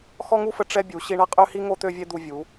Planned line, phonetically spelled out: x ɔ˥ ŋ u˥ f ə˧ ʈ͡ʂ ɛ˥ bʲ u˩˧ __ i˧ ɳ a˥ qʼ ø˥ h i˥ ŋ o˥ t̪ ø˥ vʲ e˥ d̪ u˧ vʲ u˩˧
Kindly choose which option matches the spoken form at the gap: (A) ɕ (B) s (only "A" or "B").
A